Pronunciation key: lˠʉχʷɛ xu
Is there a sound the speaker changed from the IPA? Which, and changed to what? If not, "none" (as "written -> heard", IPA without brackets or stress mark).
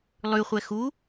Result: none